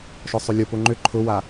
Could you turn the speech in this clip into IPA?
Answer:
ʃ ɔ sˤ ʏ lʲ ʊ p ʊ ŋ͡ǃ ʏ ǃʰ ʊ w a

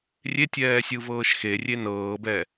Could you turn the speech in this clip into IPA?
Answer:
rʲ e tʲ ɛː sʲ ɯ v ɤː ʃ x e rʲ e n ɤː b ɛ

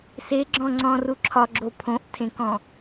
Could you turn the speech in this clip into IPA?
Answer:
s e ɡ͡ǁ ɔ̃ ŋ͡ǀ ɔ̃ r u ǁʰ ɒ ɡ͡ǁ o pʰ õ ʔ tʰ ẽ k ɔ̃

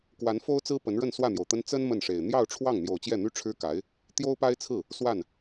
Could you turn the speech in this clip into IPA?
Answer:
k w a˧˥ n f o˥ ʊ̯ t͡s ɹ̩˥ p ə˧˥ n ɻ ə˥˧ n s w ä˥˩ n̪ j o˩ ʊ̯ t̪ ə˥ n t͡s ə˥ n m ə˥˩ n ʂ e˨˩ ɪ̯ n̪ j ɑ˥˧ ʊ̯ ʈ͡ʂʰ w ɑ˥˩ ŋ n̪ j o˨˩ ʊ̯ t͡ɕ j ɛ˥˩ n̪ y˥ ʈ͡ʂʰ ɻ̩˥ k a˧˥ ɪ̯ | t̪ j o˥ ʊ̯ p a˥ ɪ̯ t͡sʰ ɹ̩˥˩ | s w a˥˩ n

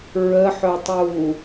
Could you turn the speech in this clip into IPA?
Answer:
ɹ ə ħ œ tˤ uː

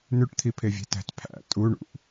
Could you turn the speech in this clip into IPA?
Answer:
n ʉ ʈ t̪ʰ i pʰ e vʲ e̤ t æ̤ t pʰ æ̰ tʼ u ɳ ṵ ʔ

